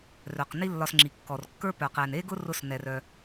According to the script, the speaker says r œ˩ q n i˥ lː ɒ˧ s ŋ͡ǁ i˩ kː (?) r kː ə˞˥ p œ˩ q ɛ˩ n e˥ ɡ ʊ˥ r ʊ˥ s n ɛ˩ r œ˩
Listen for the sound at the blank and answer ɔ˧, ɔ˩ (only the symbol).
ɔ˩